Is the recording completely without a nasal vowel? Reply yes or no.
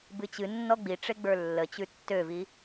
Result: yes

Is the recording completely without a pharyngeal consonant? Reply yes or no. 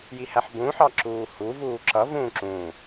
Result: no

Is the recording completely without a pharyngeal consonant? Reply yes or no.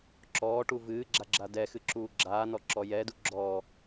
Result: yes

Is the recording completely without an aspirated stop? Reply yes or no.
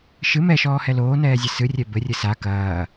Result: yes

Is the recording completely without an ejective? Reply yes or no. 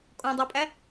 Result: no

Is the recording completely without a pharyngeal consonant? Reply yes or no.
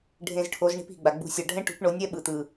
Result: yes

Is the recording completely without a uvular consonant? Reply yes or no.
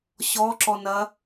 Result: yes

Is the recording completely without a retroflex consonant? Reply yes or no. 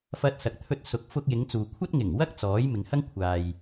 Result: yes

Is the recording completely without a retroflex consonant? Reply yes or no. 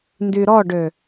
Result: no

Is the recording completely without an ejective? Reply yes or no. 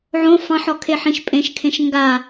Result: no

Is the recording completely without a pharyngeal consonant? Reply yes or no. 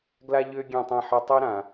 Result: no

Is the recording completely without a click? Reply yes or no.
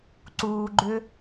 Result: no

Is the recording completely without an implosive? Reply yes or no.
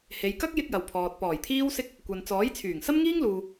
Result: yes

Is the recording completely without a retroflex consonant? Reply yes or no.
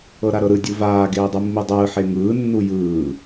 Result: yes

